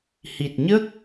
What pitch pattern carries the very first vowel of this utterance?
low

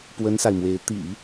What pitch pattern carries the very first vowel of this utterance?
high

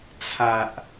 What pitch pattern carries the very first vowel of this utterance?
low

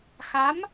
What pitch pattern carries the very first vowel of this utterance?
rising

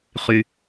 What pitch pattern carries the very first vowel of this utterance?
low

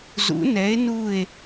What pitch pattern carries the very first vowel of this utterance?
rising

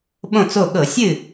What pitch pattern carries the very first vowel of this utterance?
falling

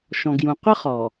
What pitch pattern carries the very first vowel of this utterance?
low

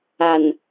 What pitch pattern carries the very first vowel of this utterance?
low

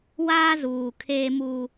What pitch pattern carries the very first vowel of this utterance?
high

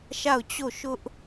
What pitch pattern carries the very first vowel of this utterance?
falling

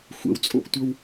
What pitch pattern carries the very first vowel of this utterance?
low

